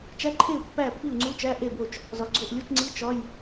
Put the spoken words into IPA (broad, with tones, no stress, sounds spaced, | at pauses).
t͡ʃ æ˧˥˧ ǃʰ e˥˩ u̯ pː æ˥˩ pː i˥˩ u̯ ŋ͡ǀ u˧˥˧ t͡ʃ æ˧˥˧ ʔ e˥˩ b o˥˩ t͡ʃ | z ɒ˨˩ ɡ͡ǀ o˥˩ ʔ lʲ u˧˥˧ t͡ʃ ŋ͡ǀ i˧˥˧ t͡ʃ ɒ˧˥˧ j